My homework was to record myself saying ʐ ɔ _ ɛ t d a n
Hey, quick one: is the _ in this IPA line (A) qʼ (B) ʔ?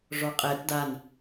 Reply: A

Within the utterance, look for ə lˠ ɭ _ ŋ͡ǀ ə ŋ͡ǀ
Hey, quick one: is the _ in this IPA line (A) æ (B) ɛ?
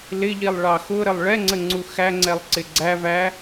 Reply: B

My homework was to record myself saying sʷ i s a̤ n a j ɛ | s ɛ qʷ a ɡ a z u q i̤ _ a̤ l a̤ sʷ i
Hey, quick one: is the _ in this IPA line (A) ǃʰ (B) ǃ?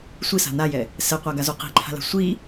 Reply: A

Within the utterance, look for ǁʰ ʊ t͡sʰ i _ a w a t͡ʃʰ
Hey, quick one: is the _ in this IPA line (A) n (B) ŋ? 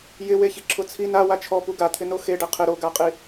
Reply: A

